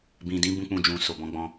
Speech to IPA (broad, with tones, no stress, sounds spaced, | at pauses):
b ĩ˨ d ĩ˨˦ b ũ˦ k͡p ũ˦˨ d͡ʒ ũ˧ s o˨ b ɔ̃˨˦ ɡ͡b ɔ̃˦